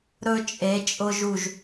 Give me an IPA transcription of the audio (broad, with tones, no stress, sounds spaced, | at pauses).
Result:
ɾ ɵ˧ t͡ʃʼ e˩˧ t͡ʃʼ ʊ˧ ʒ u˧˩ ʒ